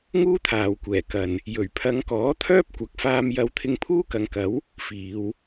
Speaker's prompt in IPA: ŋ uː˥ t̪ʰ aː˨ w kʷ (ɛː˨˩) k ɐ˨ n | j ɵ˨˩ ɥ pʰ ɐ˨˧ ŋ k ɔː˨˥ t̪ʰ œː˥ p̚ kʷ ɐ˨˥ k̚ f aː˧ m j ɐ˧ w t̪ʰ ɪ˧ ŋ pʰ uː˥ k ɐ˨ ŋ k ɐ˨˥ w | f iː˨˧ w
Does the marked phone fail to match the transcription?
no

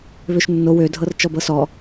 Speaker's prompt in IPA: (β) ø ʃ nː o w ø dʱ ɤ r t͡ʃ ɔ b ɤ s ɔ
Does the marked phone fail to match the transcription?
no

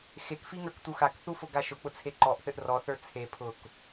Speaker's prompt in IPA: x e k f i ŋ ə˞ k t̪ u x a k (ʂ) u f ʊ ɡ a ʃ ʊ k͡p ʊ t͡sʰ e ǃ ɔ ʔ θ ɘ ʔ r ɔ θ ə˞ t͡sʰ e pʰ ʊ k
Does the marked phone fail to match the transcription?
yes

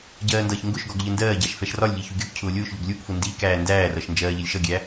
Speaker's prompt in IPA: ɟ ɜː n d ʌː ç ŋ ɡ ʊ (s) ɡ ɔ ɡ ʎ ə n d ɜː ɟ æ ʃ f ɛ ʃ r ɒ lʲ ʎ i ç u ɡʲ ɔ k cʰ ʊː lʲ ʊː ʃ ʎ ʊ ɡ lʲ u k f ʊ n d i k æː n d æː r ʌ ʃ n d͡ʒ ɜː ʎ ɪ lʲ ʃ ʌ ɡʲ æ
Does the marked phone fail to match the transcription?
yes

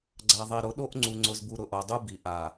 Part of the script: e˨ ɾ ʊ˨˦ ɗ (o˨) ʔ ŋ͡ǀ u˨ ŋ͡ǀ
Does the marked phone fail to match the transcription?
yes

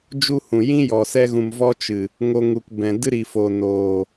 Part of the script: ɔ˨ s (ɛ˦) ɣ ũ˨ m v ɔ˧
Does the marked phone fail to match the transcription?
no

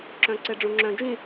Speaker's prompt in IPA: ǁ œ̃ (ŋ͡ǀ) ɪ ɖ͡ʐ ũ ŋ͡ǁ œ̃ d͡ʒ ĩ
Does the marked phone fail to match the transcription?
yes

